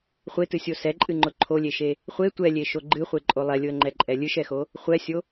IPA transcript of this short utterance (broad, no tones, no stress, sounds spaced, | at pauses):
χʷ e t ɨ sʲ o s ɛ ǃʼ ɨ ŋ͡ǃ ʊ ǃʰ o lʲ e ʃ e | χʷ e tʷ ɛ lʲ e ʃ o ɡ͡ǃ ɨ χʷ e ǃʼ o lˠ ɛ lʲ ʊ ə̯ ŋ͡ǃ ɛ ǃʼ ɛ lʲ ɨ ʃ ɛ x o | χʷ ɛ sʲ o